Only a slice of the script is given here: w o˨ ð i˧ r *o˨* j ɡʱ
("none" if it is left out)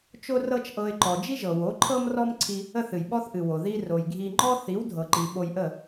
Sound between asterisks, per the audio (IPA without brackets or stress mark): o˨